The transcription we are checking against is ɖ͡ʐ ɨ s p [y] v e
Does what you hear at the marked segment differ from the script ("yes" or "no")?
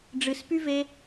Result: no